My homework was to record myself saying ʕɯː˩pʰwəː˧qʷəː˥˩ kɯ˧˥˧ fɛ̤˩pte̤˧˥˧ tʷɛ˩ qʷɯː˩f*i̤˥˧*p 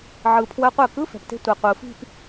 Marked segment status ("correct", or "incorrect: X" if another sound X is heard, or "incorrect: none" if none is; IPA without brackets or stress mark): correct